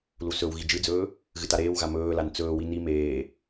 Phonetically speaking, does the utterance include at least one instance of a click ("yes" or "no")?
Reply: no